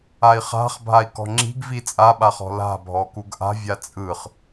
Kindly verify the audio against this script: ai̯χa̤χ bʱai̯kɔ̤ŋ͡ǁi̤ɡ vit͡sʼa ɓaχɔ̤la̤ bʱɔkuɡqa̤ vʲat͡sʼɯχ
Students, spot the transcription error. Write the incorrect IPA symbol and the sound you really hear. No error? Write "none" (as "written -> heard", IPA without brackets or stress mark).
q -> ʔ